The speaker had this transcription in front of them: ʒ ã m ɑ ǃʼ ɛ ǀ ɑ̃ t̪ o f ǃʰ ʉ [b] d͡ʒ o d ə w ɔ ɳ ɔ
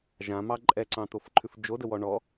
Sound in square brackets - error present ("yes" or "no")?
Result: yes